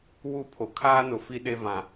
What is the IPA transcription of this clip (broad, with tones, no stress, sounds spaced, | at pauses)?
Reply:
w u˦ pʰ o˨ kʰ aː˦ n ʊ˨ f i˦ ɗ e˦ v ã˨